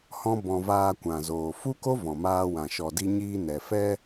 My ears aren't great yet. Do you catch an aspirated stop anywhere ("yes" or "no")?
no